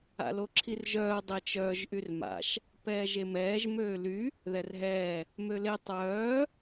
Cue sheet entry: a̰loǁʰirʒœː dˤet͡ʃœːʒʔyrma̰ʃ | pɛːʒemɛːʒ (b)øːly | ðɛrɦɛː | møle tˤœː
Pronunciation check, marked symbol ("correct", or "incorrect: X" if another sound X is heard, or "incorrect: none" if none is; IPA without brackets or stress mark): incorrect: m